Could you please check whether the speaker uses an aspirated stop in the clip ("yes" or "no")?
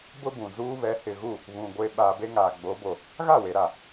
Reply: no